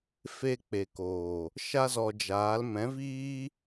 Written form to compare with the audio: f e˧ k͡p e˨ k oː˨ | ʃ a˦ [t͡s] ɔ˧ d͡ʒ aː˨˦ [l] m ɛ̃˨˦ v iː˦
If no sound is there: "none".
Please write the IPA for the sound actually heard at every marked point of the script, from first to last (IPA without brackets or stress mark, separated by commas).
z, l